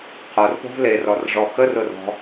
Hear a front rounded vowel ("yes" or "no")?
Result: no